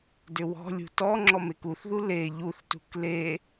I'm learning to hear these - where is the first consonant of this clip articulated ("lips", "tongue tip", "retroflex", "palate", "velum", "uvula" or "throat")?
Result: tongue tip